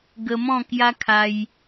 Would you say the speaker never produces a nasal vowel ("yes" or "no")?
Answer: no